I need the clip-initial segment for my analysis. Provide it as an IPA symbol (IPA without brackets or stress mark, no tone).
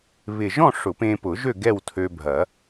β